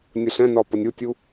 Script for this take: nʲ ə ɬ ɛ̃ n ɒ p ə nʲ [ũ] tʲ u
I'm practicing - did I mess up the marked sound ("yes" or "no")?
yes